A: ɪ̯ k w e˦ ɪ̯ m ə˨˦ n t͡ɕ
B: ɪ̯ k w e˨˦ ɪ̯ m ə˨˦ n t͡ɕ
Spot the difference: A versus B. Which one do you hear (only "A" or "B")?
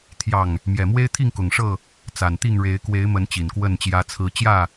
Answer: B